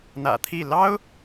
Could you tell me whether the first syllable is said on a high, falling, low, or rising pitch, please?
low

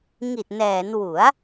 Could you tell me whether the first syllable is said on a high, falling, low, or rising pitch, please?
low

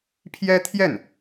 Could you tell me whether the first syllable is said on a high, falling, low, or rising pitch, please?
high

